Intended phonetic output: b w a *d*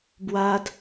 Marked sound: correct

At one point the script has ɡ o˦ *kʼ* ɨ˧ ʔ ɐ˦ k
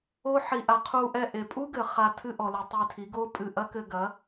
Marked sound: incorrect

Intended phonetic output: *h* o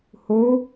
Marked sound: correct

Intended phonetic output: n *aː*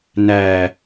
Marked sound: incorrect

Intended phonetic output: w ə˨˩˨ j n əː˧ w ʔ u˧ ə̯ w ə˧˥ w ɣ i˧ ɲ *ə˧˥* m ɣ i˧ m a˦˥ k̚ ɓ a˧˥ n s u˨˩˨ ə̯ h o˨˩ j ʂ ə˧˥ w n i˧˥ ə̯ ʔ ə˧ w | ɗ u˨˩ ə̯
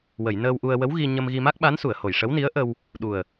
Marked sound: incorrect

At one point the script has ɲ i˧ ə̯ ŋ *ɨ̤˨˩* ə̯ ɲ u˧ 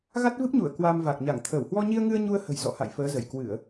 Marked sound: incorrect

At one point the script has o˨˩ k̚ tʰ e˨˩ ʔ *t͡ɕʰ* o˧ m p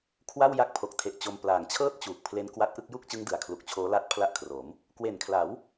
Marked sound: incorrect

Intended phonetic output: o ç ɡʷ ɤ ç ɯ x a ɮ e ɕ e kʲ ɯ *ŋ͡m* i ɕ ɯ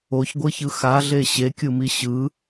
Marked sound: incorrect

